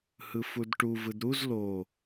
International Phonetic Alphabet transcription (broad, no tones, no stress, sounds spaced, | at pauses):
h ɯ f u d ʈ u v ɯ d ɾ u z l o